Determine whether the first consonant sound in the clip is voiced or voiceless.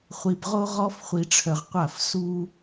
voiceless